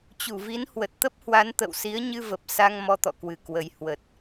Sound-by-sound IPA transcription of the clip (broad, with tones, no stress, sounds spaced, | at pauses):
t͡ɕ u˧˩ v i˨˦ n h w ə˨˩ t̚ t̪ ə˦˥ p̚ h w a˨˦ n t̪ ə̰˧˨ w s i˨˦ ə̯ ɲ ɨ˧ v ə˨˩ p̚ s a˧ ŋ m ɔ˧ t̪ ɔ̰˧˨ k w ɨ˨˩ k w ə˨˩ j h w ə˨˩ t̚